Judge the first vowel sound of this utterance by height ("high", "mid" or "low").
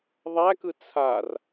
low